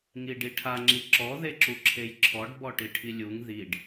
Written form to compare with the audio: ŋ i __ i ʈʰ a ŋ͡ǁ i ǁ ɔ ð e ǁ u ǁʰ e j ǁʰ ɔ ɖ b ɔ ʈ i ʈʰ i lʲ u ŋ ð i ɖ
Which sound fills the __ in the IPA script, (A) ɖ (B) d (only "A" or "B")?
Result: A